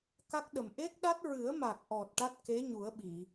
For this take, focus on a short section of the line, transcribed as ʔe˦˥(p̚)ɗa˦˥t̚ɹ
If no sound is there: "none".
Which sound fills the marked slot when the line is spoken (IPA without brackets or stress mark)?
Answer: k̚